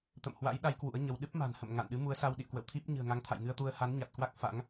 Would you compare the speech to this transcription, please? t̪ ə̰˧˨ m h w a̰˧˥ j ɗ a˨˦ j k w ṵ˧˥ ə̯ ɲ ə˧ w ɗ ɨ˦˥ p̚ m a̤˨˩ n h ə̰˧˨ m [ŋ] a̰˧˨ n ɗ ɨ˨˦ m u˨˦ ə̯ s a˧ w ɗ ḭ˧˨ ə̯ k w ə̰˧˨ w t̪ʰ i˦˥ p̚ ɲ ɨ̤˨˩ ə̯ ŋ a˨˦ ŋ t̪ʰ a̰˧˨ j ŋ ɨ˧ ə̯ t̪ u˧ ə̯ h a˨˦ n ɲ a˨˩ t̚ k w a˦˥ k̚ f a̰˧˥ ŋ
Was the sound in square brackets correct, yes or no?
yes